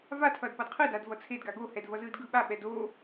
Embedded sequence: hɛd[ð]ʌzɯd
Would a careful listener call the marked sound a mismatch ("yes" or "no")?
yes